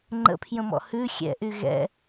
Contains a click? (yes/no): yes